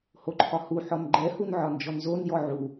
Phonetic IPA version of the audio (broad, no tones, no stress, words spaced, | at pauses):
hoǃʰɒhu ħɔnɡ͡ǃɛ hunʕɒnd͡ʒɔnzon jɔʕu